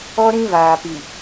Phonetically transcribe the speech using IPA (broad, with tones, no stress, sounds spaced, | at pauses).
ɔ˦ ɾ ĩ˦ β aː˨ p i˨